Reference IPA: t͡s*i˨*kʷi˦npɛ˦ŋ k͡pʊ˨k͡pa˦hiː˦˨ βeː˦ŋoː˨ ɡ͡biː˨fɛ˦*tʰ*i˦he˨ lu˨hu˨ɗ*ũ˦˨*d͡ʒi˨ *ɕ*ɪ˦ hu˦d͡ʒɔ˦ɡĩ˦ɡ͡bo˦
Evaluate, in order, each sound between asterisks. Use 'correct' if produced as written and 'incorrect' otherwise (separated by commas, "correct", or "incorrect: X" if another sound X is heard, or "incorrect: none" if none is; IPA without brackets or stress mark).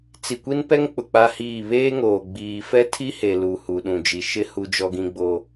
correct, correct, incorrect: ũ˨, incorrect: ʃ